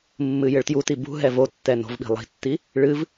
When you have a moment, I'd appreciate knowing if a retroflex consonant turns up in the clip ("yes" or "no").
yes